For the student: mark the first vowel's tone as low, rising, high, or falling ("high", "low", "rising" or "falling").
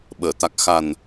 low